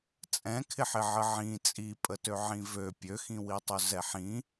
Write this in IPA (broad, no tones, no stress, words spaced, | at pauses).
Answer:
t͡sʼɛ̃kʰɪħɪ ʕəʕĩ t͡sʼipʼətø ʕĩvø pʲøxĩwitˤø zɛħĩ